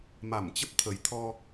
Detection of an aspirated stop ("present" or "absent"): present